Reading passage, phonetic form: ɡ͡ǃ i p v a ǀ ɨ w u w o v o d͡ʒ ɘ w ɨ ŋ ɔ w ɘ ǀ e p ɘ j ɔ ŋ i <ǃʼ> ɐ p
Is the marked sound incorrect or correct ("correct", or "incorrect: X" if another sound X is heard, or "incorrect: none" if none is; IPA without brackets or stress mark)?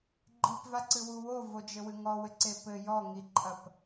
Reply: correct